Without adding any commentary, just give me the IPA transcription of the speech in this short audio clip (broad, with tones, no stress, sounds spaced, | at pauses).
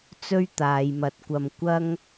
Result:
t͡s ɵ˧ ɥ t̪ aː˨ j m ɐ˨˥ t̚ kʷ ɐ˧ m kʷ ɐ˥ ŋ